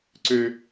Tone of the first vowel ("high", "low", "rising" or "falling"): high